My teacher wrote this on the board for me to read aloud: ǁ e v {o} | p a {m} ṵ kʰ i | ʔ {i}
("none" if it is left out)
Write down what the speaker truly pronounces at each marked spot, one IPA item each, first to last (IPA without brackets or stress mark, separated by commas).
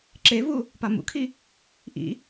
u, m, ḭ